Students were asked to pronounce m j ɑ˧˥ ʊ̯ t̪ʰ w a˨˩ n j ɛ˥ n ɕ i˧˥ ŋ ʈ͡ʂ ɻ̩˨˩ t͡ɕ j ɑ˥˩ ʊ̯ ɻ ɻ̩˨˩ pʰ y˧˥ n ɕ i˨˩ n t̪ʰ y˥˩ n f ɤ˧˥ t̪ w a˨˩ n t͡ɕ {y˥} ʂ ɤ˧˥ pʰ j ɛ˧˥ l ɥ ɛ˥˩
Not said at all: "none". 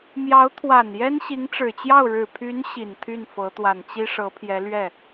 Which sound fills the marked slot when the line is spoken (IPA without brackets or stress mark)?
i˥